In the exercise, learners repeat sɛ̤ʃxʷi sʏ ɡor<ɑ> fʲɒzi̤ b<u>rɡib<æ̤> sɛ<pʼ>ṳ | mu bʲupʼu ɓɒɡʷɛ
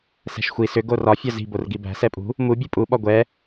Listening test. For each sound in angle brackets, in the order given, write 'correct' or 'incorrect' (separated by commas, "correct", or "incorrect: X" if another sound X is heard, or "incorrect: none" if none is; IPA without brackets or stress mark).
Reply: incorrect: ɒ, incorrect: o, correct, correct